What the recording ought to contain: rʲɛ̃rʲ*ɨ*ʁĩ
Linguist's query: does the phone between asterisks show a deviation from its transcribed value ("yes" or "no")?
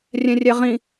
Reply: yes